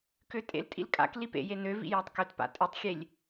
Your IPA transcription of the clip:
køtʼḛltʼḭl kʼa̰k lipḛje nøvḭ jatˤkøtpa̰ tʼøtˤxʲelʲ

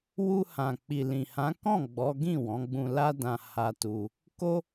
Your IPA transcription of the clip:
wu˧hã˨ k͡pi˨lĩ˨hã˨˦kɔ̃˦˨ ɡ͡bɔ˨˦ ɡĩ˦˨wɔ̃˨˦ɡ͡bũ˧la˦ dã˧ha˧tu˧ | ko˦

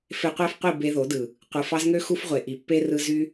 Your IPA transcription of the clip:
fe˧qʷæ˦fqʷi˦˨ be˧ðo˨˦dɯ˨ | qʷɯ˨fɑ˧z ŋø˦ xu˦f ʁʷe˨ʔi˨ pːe˦ rɯ˦ zy˦

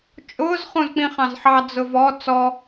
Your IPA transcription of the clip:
t͡ʃʼʊːz χũzk͡pĩχɑ̃zħɑ d͡zʊvɔ t͡sɔ

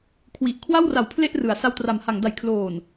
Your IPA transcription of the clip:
kʰwi˨˩ʔ kʰwa˥˩wra˨˩w pʰle˥˩ʔrɯ˩˦a̯ sa˧wtra˩˦mha˩˦ŋda˨˩j kʰloː˨˩n

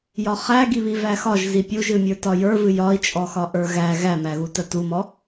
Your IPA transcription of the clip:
jɒχæɡiβi væxɒʒ zipʲuʒɨmʲə˞ tɒjə˞vɨ jɒi̯t͡ʃʼɔxɒ ʔə˞ɣæ ɣæmæɣu tətumɔ

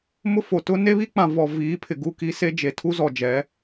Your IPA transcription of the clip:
mʊ˦fo˨ tʊ˦ ne˦βi˦k͡pã˨ vɔ˨ viː˨˦pʰɪ˨ɡu˦˨ki˦ se˦d͡ʒe˨ tʰu˦zɔ˨d͡ʒɛ˨˦

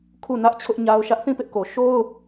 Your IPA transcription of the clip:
kʰu˦˨nä˦ʔ t͡ɕʰʊ˦ʔɲa˦ʊ̯ʃä˦ʔ θĩ˦˨pɪ˦ʔko˨ ʃo˦ʊ̯

